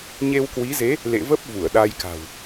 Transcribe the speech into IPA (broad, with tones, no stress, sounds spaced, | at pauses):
ɲ e˧ w k w i˨˦ z e˨˦ | l ḛ˧˨ v ə˦˥ p̚ v u˧˩ ə̯ ɗ a˧ j k a̤˨˩ w